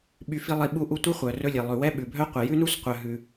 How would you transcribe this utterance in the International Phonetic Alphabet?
ɓy˦fi˥lˠi˦ ɓu˥ʔu˥ tʷi˥ χʷœ˩ rɵ˦lʲɛ˩lˠʉ˩ wɛ˥ ɓʉ˩bʱœ˥ qʷɛ˩jʉ˥nu˥s qʷœ˨ ɦʉ˩

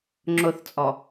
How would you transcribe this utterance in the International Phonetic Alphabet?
ŋ͡ǁʊθt͡sʼɔ

